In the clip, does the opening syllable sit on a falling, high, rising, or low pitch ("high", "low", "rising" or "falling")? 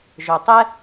low